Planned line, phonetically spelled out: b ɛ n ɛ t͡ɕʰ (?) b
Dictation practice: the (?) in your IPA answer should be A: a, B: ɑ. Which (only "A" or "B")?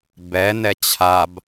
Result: A